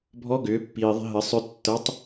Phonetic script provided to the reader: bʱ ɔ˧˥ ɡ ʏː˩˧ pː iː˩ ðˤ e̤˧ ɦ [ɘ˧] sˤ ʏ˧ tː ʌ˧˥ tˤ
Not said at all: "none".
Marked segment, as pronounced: ɘ˩˧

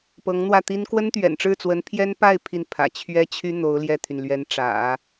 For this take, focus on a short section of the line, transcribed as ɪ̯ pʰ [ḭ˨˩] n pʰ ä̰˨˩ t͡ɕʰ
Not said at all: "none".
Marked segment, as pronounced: i˥˩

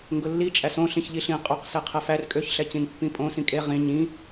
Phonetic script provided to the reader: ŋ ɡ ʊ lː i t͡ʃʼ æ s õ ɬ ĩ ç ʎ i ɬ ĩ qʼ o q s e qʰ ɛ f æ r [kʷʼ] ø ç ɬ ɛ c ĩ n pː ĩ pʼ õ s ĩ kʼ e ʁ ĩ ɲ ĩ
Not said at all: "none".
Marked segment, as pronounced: kʼ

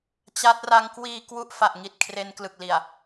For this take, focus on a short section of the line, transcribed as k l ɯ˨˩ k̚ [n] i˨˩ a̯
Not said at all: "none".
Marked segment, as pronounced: l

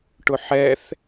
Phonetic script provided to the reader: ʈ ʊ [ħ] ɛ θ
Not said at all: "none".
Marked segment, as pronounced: ħ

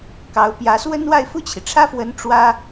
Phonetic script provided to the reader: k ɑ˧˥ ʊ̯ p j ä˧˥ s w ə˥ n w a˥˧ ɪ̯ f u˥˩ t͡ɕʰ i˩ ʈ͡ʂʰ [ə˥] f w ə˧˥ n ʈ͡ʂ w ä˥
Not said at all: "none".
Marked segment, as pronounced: ä˥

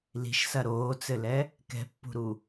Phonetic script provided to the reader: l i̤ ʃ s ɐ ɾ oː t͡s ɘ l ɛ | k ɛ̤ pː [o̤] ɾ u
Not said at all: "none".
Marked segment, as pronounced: ṳ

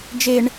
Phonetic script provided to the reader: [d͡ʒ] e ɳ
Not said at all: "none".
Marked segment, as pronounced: d͡ʒ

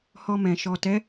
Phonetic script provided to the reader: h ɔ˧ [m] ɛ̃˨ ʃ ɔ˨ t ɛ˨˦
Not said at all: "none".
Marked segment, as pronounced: m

